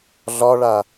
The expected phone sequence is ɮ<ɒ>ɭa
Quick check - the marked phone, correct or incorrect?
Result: correct